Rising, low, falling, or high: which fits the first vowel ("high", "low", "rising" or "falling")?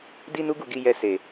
high